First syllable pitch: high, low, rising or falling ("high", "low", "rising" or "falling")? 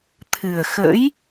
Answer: low